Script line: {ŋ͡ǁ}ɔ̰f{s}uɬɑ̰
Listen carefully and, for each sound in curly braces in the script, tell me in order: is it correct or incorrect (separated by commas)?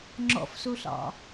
correct, correct